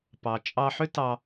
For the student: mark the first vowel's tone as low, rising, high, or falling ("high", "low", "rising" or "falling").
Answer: low